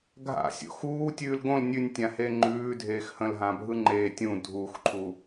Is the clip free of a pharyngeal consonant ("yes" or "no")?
yes